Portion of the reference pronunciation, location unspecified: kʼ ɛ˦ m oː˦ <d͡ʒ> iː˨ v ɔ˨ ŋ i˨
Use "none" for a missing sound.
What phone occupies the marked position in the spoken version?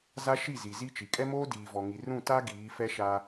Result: d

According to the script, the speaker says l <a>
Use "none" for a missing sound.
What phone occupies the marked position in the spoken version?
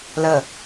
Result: ə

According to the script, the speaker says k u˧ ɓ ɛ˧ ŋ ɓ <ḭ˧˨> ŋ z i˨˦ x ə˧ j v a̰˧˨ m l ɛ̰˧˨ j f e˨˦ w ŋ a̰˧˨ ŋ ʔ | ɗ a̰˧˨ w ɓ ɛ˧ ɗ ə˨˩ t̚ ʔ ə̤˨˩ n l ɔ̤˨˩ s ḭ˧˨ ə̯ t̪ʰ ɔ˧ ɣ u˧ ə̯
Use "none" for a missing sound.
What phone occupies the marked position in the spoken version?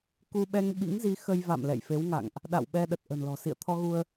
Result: ḭ˧˥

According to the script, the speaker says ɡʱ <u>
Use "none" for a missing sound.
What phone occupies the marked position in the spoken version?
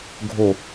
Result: o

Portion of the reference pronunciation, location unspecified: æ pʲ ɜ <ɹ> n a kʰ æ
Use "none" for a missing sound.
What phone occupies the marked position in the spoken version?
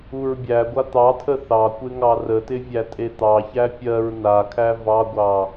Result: ɹ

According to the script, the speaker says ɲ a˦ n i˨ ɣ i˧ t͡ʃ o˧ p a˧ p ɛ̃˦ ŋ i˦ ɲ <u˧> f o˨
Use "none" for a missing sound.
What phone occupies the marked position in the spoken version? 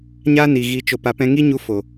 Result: u˧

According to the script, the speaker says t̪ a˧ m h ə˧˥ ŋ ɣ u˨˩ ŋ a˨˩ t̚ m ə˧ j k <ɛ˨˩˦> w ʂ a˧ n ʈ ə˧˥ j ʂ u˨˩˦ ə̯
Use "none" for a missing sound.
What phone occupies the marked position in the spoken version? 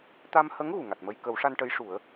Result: ə˨˩˦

